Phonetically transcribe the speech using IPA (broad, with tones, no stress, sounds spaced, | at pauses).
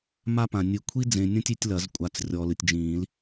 m a˦ p ã˨ nʲ ɨ˨˩˦ kʷʰ i˦ d͡z ẽ˨ nʲ ɐ̃˦ tʲ i˦ tʲ l ɐ˨˩˦ z kʷʼ a˨ t͡s rʲ ɔː˨ l ɨ˨ tʲ d͡ʒ ĩː˨˩˦ l